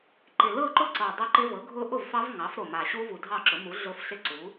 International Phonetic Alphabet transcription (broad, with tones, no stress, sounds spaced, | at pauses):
ǃ ɪ˨˩ l ɤ˥˨ ǃ ʊ˥˨ ǀ ɤ˨˩ dˤ ʊ˦˥ ǃ ɪ˦˥ v ɤ˩˥ ɡʱ ʊ˦˥ ʔ ʊ˥˨ v f ɑ˦˥ v ŋ ɑ˩˥ f ɾ o˨˩ m a˨˩ ɕ u˦˥ v u˨˩ dʱ ɑ˥˨ ǁ ʊ˩˥ m u˩˥ ɮ ʊ˦˥ f ɬ ɪ˥˨ ǀ u˩˥